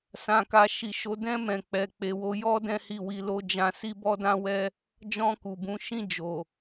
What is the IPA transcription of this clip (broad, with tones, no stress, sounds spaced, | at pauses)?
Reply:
s ã˨ k a˨ ʃ i˨ ʃ o˨˦ d ɛ̃˧ m ɛ̃˨ k͡p ɛ˨ k͡p e˨ w o˨˦ j ɔ˦ d ɛ̃˦ h i˦˨ w i˧ l o˦ d͡ʒ ã˧ s i˦ b ɔ˦ d ã˦ w ɛ˦ | d͡ʒ ɔ̃˧ k u˨ b ũ˨˦ ʃ ĩ˦˨ d͡ʒ o˨